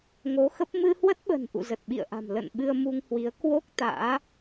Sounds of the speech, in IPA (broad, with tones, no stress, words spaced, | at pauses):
ŋo˨˦xə˦˥p̚ mɨ˧hwə˦˥t̚ɓə̤˨˩n ʔṵ˧˨zə˨˩t̚ɓḭ˧˨ə̯ʔa̤˨˩m lə̰˧˨n ɓɨ˧ə̯mu˧ŋhwi˨˦ə̯ kwo˦˥k̚ t̪a̰ː˧˥